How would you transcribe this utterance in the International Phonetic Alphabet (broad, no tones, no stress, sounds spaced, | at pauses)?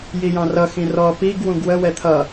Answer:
j i j ɑ̃ r ʌ x ĩ r ɔ p i ɡ w ũ ɡ w ə w ɛ t̪ʰ ʌ